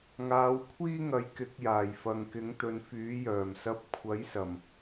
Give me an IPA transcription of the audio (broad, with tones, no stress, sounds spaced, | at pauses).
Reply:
ŋ aː˨˧ w kʷʰ iː˥ ŋ ɐ˨˥ j k ɪ˨˥ k̚ j aː˨˩ j f ɐ˨ ŋ k ɪ˨˥ ŋ t̪ ɵ˨˧ n f yː˨˥ j œː˨˩ m s ɐ˧ p̚ kʷʰ ɐ˨˥ j s ɐ˨˩ m